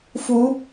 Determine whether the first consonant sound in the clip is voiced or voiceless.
voiceless